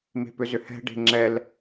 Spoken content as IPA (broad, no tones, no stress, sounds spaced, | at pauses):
m e̤ p ʏ z ʏ h ɛ̤ ɖ e̤ ŋ͡ǁ ɛ l